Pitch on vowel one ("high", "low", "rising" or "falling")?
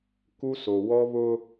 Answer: high